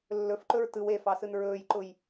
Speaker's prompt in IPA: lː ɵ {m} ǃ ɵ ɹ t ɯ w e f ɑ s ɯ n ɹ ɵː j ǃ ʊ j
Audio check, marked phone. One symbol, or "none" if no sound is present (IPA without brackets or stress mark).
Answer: f